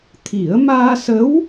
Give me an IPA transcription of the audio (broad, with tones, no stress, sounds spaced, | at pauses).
t̪ʰ i˨˩˦ ə̯ m aː˧ s ə˧˥ w